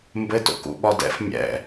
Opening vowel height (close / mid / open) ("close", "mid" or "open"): mid